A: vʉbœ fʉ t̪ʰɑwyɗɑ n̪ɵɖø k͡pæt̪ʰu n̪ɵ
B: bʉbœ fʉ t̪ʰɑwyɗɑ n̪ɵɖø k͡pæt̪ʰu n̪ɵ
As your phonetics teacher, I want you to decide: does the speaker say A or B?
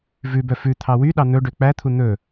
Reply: A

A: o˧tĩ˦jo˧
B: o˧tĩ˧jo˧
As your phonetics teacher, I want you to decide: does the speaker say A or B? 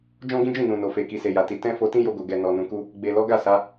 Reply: A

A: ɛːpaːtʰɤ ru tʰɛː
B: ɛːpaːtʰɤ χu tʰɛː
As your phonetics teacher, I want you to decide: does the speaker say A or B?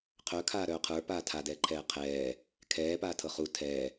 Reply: B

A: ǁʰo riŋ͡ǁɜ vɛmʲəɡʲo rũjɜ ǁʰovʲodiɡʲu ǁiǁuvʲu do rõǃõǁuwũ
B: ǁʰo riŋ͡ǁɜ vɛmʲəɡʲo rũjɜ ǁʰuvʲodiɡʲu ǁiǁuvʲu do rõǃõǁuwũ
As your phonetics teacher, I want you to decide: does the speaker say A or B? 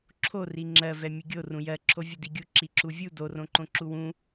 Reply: A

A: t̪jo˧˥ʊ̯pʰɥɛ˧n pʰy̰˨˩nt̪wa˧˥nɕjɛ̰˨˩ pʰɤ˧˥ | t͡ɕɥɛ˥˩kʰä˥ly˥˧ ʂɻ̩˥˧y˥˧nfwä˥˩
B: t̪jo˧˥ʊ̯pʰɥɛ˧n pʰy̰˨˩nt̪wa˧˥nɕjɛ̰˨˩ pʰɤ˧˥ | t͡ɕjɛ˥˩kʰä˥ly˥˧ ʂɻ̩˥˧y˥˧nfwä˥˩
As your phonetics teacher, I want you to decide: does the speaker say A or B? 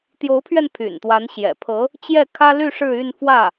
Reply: B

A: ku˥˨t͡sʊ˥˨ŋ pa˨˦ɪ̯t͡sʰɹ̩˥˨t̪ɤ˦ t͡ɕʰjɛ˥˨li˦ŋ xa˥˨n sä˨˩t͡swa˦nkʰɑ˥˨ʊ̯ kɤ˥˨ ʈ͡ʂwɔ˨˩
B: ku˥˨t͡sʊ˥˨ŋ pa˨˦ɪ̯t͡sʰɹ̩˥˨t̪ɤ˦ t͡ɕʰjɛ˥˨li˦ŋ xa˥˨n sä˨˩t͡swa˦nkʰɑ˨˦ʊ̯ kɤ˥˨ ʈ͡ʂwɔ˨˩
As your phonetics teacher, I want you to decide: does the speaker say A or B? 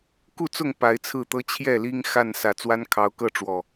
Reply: B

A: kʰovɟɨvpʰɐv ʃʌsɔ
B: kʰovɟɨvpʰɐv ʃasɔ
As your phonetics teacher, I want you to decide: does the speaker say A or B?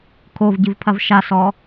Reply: B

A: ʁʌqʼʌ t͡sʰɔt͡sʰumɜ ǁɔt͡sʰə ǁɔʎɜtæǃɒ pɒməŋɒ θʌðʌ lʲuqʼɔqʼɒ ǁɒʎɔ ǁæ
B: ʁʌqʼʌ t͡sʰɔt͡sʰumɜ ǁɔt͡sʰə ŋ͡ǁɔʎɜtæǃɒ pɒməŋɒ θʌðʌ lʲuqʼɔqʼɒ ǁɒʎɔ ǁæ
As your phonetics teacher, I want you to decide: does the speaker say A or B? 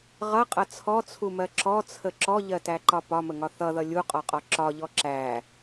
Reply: A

